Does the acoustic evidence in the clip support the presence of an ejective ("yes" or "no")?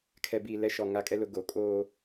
yes